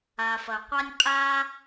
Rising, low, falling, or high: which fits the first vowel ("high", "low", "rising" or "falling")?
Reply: low